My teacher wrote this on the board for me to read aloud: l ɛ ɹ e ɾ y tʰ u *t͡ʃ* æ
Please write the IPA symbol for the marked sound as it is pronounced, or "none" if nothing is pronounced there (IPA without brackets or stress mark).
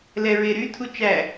t͡ʃ